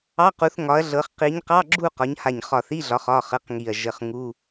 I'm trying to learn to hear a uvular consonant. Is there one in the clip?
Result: yes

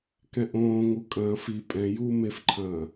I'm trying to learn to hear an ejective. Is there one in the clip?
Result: yes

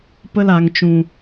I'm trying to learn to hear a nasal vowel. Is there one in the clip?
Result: yes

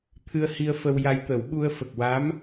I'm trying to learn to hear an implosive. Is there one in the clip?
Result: yes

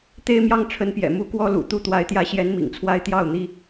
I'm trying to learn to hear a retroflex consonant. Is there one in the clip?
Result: yes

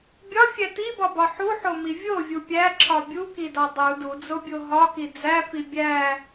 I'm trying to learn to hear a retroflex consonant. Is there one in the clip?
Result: no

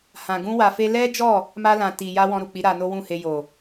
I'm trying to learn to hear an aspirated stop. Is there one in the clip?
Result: no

